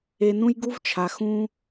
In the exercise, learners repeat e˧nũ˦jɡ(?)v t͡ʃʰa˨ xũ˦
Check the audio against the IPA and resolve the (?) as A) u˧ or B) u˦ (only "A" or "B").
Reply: B